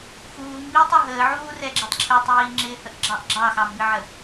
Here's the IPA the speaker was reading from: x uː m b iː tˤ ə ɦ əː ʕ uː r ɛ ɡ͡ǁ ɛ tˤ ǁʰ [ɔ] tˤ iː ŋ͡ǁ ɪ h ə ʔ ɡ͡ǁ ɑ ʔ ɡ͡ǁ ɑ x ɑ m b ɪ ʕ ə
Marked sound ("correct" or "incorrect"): incorrect